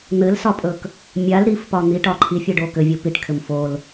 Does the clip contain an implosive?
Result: no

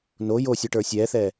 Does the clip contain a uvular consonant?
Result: no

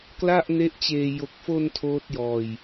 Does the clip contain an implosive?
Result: no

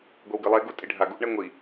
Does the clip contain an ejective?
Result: yes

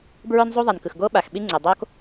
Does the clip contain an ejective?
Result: no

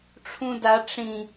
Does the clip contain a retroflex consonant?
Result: yes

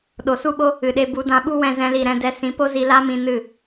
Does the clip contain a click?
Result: no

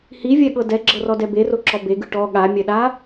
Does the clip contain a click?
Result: yes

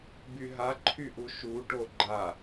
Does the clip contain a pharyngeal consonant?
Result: no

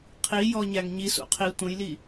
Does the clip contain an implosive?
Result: no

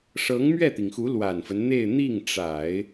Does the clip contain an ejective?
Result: no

